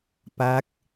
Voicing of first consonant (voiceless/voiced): voiceless